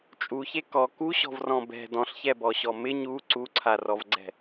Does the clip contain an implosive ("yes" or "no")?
no